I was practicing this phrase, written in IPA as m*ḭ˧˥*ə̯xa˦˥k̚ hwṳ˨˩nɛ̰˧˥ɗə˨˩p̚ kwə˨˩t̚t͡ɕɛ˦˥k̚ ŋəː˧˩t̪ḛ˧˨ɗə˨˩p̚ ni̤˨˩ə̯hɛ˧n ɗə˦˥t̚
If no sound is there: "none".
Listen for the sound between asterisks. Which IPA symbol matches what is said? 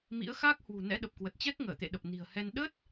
ḭ˧˥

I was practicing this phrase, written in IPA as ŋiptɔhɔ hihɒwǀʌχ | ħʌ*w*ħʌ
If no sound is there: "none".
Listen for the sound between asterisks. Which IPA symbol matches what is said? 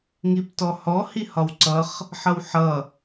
w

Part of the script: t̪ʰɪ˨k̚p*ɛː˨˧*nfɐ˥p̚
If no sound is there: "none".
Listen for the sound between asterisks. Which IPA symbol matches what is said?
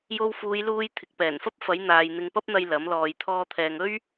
ɛː˨˩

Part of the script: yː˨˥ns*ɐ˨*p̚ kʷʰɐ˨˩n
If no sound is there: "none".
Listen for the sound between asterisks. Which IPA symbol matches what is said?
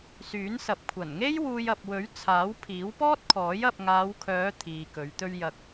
ɐ˨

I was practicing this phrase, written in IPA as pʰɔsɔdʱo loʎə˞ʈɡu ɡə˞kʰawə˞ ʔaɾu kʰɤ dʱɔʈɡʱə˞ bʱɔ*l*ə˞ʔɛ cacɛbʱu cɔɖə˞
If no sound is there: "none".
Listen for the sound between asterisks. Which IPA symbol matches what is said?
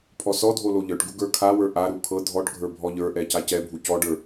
ʎ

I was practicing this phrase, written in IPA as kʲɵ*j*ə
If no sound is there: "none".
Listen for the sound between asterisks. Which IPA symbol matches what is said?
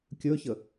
ç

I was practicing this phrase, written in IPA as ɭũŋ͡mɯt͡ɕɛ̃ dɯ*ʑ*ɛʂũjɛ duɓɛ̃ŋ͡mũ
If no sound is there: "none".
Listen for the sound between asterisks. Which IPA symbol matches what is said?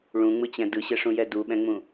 ɕ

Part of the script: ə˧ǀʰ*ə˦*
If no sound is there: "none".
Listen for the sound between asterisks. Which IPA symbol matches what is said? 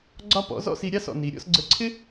ɪ˦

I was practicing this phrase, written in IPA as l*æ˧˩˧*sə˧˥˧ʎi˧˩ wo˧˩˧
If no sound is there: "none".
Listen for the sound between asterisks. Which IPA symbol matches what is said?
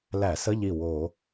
æ˧˩˧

